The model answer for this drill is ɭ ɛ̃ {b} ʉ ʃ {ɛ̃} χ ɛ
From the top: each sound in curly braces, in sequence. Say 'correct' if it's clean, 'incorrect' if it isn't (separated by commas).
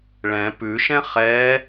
incorrect, correct